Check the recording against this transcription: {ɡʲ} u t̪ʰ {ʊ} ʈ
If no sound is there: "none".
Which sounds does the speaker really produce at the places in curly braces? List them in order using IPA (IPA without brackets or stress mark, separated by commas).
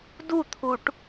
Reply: d, u